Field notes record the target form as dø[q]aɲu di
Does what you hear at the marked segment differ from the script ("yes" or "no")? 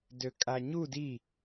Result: yes